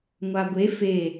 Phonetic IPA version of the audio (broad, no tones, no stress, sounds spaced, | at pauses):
ŋʷ a ɡʷ e f e